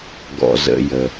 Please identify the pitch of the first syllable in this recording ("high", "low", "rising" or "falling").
low